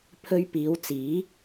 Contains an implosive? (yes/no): no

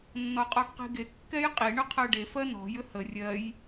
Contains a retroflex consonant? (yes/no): yes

